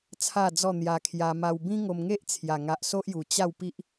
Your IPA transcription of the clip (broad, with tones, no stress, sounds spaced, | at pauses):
t͡sʰ a˥˧ d͡z ɔ˥˧ n̪ j a˧ kʰ j a˧ m a˧ w b ĩ˦ ŋ o˧ m ŋ e˦ ʔ t͡sʰ j a˨˩ ŋ a˨ ʔ s o˦ ʔ j u˨˩ t͡ɕ a˥˧ w p i˦ ʔ